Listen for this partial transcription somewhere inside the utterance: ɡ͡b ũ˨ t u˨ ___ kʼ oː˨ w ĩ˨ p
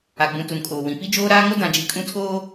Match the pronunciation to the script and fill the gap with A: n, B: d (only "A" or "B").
A